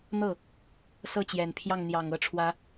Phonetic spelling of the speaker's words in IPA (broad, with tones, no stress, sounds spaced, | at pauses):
n̪ ɤ˥˩ | s ɤ˥˩ t͡ɕ j ɛ˨˩ n pʰ j ɑ˥˩ ŋ n̪ j ɑ˨˩ ŋ ɤ˥ ʈ͡ʂʰ w ä˥